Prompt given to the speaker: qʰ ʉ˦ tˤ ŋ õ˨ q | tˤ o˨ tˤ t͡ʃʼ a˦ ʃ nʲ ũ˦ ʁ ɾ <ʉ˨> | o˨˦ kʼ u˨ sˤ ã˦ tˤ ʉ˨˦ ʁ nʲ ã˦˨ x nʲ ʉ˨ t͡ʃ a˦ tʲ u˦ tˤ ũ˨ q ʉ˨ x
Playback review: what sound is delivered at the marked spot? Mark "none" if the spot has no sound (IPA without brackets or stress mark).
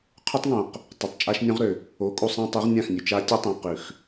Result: ø˨